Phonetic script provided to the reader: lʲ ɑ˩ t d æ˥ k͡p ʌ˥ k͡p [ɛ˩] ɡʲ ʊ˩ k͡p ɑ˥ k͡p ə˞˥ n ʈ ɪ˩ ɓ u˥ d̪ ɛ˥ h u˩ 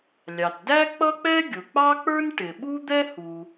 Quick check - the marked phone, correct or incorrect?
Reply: incorrect